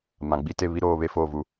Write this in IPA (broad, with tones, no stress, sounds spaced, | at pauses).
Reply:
m ã˨ ɡ͡b i˦ t e˦˨ β i˦ ɾ oː˦ β e˦ f oː˦˨ v u˦